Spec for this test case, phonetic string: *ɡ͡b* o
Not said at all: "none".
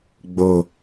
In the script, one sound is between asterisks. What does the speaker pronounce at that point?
ɡ͡b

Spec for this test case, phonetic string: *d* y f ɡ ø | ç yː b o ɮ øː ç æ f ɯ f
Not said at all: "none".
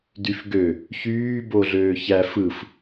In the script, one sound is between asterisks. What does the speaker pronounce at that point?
d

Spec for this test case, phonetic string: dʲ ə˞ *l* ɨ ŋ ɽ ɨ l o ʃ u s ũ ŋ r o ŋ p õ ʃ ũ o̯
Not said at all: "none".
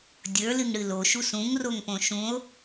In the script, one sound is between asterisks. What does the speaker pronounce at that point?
l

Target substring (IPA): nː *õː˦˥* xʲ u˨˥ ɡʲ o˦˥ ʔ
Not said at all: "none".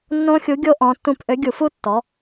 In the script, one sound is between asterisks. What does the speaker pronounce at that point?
õ˦˥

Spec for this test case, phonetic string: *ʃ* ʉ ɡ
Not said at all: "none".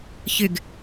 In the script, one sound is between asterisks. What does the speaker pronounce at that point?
ç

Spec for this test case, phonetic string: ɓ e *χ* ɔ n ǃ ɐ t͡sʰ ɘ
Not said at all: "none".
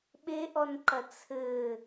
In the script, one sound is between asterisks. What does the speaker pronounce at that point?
ʔ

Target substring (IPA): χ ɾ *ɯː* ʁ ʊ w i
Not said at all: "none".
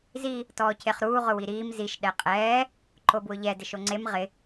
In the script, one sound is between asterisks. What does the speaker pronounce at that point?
uː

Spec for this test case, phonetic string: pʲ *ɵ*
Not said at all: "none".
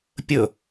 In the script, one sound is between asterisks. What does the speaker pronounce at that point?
ɵ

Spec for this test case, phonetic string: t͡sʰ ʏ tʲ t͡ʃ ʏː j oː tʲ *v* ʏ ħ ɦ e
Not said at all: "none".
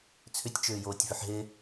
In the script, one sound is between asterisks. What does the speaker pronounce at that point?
v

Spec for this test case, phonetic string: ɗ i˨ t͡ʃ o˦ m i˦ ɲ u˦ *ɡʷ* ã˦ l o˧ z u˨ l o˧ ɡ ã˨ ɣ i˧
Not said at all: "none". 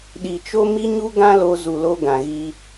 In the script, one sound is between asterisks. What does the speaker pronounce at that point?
ɡ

